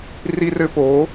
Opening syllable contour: high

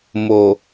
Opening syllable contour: low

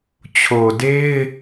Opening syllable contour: low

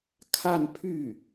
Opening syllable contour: falling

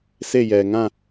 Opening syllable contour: falling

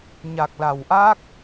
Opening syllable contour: low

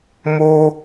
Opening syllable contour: high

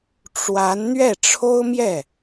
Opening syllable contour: rising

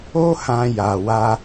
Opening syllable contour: high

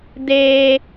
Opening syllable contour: high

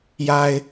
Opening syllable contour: low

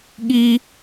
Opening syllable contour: low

